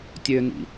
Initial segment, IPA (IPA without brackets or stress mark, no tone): tʲ